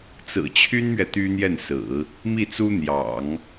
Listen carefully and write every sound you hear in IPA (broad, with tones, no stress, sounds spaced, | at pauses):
t͡s ɹ̩˨˩ t͡ɕʰ y˥ n m ɥ ɛ˨ t̪ y˥ n̪ j ɛ˥˩ n s ɹ̩˨˩˦ | m i˥˩ t͡s u˥ n̪ j ɑ̰˨˩˦ ŋ